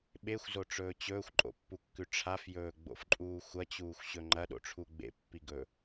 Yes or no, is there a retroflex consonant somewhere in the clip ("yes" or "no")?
yes